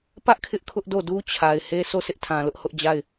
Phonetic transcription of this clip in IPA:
p ä˦ ʔ kʰ ɪ˦ ʔ kʰ ʊ˦ ʔ d o˦˨ d u˦ t͡ɕʰ a˨ ɪ̯ h e˦ s o˦˨ s ɪ˦ ʔ tʰ ã˨ l ʊ˦ ʔ h ʊ˦ ʔ d͡ʑ a˦˨ ɪ̯

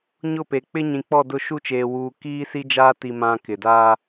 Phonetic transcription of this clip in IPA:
ɲ ʊ˦˨ p e˨ k͡p ɪ˦ ɲ ĩ˨ k͡p ɔ˦˨ d ʊ˦˨ ʃ u˦ t͡ʃ eː˨ w uː˨ k iː˦ s i˦ d͡ʒ aː˦ t i˦ m ã˦ k ɪ˨ d aː˦

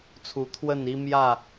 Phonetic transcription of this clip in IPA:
t͡sʰ u˨˦ t̪ʰ w ə˥˨ n i˦ m j ä˥˨

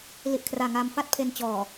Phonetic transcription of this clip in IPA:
l i˨˩ ʔ kʰ r aː˨˩ ŋ aː˧ m f a˥˩ t̚ pʰ e˧ n t͡ɕ ɔː˨˩

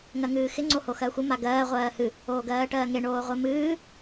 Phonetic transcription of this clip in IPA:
ŋ ɜ ŋ ɨː x ɪ ŋ͡ǀ o h o x ɜ xʷ ɪ m a ɡ ɜː ʁʷ ɜː h ɨ | oː ɡ ɜː ʈ ɜː ŋ e ɳ oː ʁʷ e m ɨː

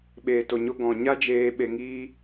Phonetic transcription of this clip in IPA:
ɓ eː˨ t o˨ ɲ o˧ ɡ ɔ̃˨ ɲ a˦ d͡ʒ eː˧ ɓ e˧ ŋ iː˦

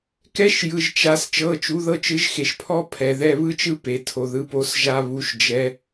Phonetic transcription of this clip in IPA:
k ɛ˥ ʃ j ɯ˨ ʒ t͡ʃ a˧˥ s t͡ʃ ɤ˧˥˧ t͡ʃ u˧˥ ð ɤ˥ t͡ʃ ɯ˧˥ ʒ x e˨ ʃ pʰ ɔ˥ pʰ ɛ˨ ð ɛ˧˥˧ β ɯ˥ t͡ʃ ɯ˥ p e˨ tʰ o˨ ð ɯ˧˥ p o˧˥ s ʒ a˥ β u˧˥ ʃ d͡ʒ ɛ˧˥

